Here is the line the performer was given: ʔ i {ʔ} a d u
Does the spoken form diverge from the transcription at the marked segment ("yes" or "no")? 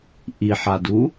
yes